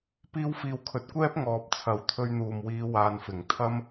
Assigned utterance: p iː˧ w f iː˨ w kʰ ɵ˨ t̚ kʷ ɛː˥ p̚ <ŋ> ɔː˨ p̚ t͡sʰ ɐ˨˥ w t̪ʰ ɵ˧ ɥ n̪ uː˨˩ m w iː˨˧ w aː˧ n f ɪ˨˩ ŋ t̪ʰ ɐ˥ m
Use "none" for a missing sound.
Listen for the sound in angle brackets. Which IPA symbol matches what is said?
ŋ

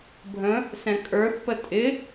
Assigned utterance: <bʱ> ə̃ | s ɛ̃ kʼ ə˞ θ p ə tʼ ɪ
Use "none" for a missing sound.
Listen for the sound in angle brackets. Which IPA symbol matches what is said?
bʱ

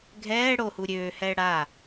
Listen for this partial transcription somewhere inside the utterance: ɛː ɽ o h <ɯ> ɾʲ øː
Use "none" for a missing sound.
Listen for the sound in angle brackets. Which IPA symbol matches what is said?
u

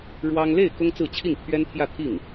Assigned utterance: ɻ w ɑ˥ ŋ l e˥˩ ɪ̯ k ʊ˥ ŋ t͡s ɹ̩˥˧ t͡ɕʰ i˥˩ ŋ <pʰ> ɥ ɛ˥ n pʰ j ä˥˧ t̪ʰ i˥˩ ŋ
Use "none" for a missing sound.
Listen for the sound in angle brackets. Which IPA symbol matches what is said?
pʰ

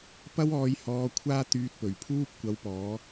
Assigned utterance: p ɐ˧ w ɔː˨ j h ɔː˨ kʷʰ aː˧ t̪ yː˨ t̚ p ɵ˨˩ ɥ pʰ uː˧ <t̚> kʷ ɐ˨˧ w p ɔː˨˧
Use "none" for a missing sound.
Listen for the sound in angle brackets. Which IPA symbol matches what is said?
p̚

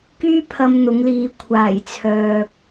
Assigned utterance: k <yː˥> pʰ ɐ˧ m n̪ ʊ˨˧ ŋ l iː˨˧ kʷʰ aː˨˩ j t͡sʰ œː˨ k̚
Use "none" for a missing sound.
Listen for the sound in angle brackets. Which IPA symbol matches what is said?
yː˥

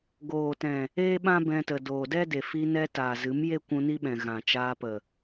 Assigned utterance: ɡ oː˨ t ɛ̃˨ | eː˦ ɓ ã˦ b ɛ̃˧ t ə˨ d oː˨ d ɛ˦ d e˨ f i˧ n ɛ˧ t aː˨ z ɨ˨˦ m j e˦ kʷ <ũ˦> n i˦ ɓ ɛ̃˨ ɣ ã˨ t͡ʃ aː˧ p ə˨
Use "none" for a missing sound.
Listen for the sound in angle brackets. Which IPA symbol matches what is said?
ũ˧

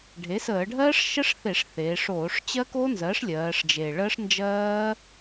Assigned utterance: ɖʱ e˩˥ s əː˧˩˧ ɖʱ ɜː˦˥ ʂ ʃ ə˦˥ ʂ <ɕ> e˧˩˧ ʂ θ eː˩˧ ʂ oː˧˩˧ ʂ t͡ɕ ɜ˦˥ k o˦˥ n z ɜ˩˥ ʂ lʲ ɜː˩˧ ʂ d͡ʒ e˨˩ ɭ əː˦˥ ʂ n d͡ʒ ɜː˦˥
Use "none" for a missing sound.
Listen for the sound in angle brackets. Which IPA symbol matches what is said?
θ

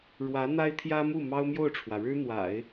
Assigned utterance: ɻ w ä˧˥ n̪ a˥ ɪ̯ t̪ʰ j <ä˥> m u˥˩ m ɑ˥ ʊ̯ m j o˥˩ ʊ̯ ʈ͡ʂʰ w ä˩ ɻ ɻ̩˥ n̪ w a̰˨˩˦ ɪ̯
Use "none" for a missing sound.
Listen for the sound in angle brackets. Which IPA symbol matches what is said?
ä˥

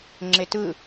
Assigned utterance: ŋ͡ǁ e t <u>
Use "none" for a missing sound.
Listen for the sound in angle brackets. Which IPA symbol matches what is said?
ɯ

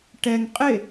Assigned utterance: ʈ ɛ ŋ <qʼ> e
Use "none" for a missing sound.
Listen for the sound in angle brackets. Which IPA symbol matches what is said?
qʼ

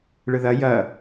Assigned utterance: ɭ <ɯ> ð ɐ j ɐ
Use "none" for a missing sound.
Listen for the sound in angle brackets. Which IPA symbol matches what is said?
ɯ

